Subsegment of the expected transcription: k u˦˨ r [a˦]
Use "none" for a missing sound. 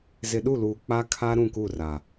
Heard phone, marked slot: a˨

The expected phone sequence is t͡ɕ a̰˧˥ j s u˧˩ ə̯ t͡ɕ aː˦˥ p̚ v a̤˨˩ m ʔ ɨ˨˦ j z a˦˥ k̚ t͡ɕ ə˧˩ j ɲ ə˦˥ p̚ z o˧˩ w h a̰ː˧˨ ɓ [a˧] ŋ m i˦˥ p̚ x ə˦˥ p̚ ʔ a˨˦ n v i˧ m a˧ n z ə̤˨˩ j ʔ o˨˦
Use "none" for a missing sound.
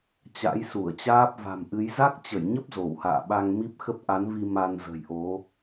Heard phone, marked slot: a˧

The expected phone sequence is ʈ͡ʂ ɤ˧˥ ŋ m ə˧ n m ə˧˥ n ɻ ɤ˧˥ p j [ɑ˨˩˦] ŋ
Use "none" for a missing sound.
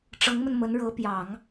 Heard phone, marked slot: ɑ˨˩˦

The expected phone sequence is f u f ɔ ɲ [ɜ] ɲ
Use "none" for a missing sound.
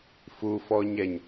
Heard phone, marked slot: ɛ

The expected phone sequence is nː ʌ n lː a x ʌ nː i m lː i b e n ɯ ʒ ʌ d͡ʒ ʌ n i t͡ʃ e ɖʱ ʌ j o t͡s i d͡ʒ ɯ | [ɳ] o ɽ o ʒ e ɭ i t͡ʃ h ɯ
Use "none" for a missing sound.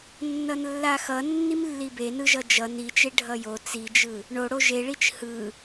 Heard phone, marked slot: ɳ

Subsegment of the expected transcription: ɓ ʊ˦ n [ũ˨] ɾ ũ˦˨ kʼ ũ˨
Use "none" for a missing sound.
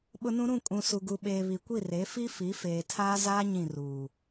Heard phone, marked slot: ũ˦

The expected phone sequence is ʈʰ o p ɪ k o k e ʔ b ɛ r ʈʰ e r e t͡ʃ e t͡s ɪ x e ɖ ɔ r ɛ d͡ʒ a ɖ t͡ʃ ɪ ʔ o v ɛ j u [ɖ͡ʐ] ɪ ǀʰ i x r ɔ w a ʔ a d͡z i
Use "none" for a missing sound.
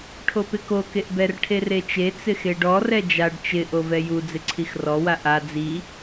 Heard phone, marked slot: d͡z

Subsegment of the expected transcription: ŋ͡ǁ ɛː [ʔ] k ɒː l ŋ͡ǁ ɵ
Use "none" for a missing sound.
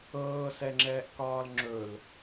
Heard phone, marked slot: ʔ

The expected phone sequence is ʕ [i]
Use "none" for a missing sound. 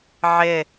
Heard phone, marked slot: ɪ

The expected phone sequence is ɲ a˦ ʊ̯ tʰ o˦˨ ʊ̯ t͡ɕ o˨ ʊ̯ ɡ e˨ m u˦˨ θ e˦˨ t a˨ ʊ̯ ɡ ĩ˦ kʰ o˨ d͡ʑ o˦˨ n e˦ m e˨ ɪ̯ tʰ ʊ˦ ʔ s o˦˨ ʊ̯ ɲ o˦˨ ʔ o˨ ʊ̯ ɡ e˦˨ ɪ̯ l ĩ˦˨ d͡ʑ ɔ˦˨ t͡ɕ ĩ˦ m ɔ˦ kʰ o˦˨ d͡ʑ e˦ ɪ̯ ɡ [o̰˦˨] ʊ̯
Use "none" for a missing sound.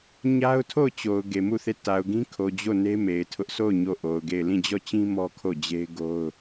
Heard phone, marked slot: o˦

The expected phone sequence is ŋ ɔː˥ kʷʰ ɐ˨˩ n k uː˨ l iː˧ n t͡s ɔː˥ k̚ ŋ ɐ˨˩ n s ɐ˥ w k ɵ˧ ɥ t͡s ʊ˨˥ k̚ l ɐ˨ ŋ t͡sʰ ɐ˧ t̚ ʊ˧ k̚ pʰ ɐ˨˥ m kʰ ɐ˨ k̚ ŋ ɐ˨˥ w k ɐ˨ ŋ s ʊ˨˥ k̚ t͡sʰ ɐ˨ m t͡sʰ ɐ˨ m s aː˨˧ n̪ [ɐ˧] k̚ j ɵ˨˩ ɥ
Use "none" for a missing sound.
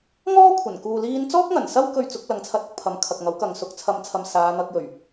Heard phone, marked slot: ɐ˧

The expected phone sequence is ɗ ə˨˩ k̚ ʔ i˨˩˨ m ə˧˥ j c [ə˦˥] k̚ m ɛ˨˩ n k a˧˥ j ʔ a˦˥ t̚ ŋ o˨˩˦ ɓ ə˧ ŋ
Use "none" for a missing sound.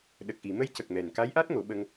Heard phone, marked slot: ə˨˩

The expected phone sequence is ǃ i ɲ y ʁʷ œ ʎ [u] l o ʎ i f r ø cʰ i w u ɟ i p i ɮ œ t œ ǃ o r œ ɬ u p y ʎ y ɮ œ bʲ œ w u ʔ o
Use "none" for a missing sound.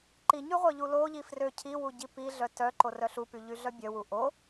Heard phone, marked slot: u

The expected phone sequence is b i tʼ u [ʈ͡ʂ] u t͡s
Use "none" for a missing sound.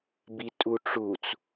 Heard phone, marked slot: ʈ͡ʂ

